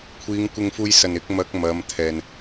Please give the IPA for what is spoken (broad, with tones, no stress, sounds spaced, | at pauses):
kʷʰ iː˨˧ ŋ kʷ ɪ˧ ŋ f uː˧ j s ɐ˨˩ n ɪ˨˥ k̚ m ɐ˨˥ k̚ m ɐ˨˧ m t̪ʰ ɛː˨ n